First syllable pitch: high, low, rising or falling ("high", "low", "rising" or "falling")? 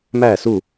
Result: falling